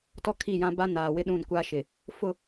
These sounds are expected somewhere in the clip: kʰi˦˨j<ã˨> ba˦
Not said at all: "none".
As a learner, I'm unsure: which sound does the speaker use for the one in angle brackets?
ã˦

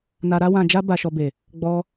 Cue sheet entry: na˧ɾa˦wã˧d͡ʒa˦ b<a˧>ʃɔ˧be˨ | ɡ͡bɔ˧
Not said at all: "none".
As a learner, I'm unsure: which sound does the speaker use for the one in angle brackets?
a˧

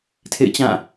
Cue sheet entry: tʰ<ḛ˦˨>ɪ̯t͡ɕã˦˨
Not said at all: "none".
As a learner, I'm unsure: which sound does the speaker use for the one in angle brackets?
ḛ˦˨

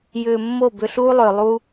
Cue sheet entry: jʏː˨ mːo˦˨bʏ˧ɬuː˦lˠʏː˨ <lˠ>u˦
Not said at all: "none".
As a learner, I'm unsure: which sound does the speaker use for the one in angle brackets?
lˠ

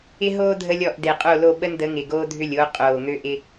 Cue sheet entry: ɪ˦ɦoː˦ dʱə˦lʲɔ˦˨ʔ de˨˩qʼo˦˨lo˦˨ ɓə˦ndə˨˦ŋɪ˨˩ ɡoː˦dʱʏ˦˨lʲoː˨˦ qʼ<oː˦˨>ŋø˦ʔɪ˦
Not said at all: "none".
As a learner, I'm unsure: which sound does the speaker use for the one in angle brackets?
oː˨˩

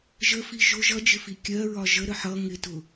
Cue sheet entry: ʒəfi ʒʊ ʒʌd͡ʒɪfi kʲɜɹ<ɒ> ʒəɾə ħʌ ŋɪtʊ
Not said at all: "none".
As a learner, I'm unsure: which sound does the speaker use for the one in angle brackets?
ɒ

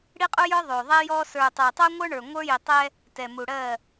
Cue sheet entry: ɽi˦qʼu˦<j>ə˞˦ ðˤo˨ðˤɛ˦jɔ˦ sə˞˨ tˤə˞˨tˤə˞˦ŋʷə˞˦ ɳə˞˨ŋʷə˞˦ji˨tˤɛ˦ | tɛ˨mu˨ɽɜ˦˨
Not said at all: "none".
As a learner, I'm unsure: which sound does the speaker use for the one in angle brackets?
j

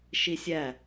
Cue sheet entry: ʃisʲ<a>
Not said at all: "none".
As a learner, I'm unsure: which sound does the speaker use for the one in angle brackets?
æ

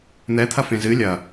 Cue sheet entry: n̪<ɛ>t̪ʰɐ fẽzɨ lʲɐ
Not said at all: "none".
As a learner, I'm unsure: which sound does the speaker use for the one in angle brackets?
ɛ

